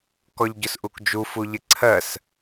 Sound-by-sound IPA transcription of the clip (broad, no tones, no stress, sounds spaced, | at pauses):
k ɔ ʎ ɟ ʊ s ʔ u k d͡ʒ u f u ʎ ɪ ǀʰ ɜ s